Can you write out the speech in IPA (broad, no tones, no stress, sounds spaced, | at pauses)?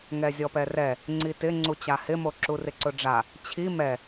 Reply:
ŋ ɛ zʲ ɔ p ɛ r ɛ | ŋ͡ǀ i t ɪ ŋ͡ǀ u t͡ɕ a h ɪ m o ǁ u r ɪ ǀ ʊ ɖ͡ʐ a | t͡ɕʰ i m ɛ